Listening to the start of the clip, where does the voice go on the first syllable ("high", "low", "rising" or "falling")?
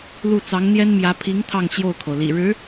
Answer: falling